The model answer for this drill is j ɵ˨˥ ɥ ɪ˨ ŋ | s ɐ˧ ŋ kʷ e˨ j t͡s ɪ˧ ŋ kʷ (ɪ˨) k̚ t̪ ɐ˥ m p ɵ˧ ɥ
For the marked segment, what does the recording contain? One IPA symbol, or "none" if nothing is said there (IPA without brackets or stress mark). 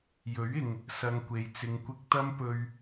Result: ɪ˥